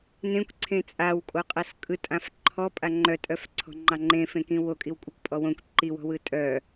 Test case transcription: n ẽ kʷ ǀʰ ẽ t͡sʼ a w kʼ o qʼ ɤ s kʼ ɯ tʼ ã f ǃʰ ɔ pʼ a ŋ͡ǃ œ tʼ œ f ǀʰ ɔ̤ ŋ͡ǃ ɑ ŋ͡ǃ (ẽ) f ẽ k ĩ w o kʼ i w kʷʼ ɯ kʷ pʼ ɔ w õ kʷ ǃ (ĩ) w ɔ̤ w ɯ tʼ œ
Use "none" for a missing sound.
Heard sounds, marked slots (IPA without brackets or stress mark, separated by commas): ẽ, i